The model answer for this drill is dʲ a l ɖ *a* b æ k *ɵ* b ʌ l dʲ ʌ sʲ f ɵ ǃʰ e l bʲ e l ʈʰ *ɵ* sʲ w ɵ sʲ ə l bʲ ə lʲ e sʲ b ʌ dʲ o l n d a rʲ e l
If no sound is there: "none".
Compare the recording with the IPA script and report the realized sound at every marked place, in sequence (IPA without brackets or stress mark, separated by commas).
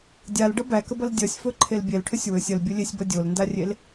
ʌ, ə, ɵ